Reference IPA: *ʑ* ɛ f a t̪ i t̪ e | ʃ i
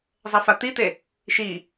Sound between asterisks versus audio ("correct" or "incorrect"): incorrect